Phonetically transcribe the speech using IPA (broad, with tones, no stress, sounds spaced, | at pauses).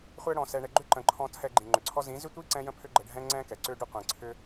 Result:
χʷ ɛ˧ ɽ ɔ̃˨ s ɛ˨ ɳ ɛ˨ ɡ͡ǃ ʏ˦ ǃ ə̃˨ ǃʰ ɔ̃˧ tʰ ɛ˧ ɡ͡ǃ ĩ˨ ŋ͡ǃ ʏ˨ ǀʰ ɔ˦ z ĩ˨˦ z ʏ˦ tʷ i˦ ǀ ɛ̃˦ j ə̃˦ pʰ ʏ˦ ɡ͡ǃ ə˧ ɖʱ ɛ̃˦ ŋ͡ǀ ɛ̃˦ k ɛ˨ ǀ ʏ˦ ɖ ʏ˦ qʷ ĩ˨ ǀʰ ʏ˦